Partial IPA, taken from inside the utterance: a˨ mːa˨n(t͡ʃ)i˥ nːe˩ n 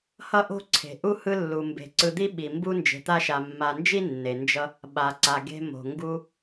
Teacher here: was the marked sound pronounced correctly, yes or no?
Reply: no